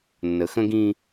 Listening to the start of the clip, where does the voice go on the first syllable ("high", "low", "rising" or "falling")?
low